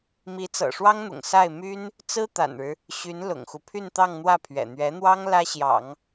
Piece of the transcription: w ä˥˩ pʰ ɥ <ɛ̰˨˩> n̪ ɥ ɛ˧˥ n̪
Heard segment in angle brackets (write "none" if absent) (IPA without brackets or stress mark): ɛ̰˨˩